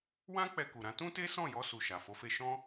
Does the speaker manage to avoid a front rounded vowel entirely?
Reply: yes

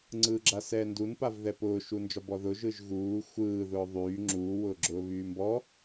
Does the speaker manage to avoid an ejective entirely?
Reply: yes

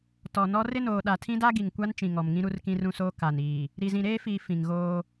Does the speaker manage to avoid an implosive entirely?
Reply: no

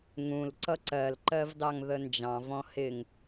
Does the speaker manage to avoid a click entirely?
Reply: no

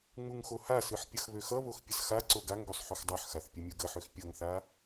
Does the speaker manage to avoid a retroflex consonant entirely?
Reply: yes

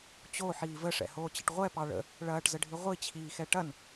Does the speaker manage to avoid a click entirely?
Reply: yes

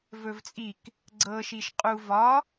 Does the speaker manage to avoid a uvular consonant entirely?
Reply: no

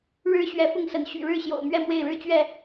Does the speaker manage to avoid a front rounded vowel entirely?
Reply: no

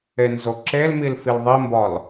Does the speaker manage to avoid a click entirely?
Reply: no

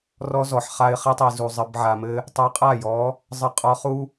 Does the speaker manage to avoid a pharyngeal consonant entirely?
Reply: no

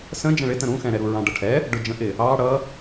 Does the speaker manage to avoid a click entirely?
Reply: yes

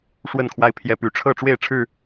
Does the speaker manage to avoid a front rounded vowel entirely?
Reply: no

